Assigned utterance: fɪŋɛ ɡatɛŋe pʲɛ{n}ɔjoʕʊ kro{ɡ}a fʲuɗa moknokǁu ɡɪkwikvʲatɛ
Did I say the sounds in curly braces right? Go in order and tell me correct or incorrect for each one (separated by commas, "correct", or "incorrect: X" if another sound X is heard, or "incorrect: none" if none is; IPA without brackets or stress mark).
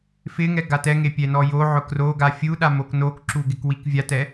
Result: correct, correct